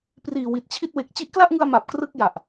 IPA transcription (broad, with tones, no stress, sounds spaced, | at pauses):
p r iː˨˩ w i˨˩ t̚ t͡ɕʰ i˥˩ t̚ w e˨˩ k̚ t͡ɕ i˦˥ ʔ k l a˥˩ ʔ ŋ ɯ˧ a̯ m a˨˩ p̚ k r ɯ˥˩ k̚ j a˨˩ ʔ